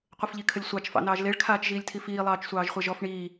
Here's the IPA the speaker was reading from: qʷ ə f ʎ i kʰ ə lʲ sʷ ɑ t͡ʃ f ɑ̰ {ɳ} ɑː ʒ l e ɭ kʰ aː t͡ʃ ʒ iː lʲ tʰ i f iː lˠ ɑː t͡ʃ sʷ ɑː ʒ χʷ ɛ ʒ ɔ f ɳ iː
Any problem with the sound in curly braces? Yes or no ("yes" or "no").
yes